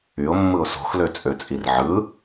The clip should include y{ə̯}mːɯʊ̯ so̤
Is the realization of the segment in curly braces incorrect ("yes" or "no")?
yes